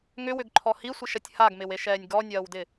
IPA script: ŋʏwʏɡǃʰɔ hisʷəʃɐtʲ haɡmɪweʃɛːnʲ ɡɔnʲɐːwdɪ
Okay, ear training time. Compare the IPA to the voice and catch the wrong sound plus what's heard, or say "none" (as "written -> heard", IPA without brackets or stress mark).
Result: ə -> ɪ